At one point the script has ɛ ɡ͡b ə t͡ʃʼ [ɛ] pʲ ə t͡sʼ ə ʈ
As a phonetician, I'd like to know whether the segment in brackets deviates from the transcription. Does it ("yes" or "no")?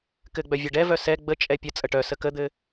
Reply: no